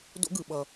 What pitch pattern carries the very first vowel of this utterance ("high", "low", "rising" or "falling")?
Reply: high